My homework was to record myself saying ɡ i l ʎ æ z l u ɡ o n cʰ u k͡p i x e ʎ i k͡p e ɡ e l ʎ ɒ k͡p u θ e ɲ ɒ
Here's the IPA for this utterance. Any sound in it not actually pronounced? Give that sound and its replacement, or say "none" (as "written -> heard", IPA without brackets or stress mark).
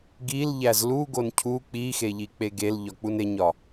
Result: θ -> n